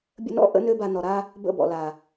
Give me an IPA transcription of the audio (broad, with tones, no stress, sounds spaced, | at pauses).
bʲ ə̰˦ n ɔ̰˦ ʔ ə̰˦ n ø˦ b a˧ n ɔ˨ ɾ a˦ | b ə̰˦˨ b ɔ̰˨ l a˨